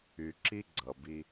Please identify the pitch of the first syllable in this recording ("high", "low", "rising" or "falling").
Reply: low